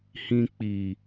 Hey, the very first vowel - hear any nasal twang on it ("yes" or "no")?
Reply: yes